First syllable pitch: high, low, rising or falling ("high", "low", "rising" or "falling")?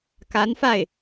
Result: rising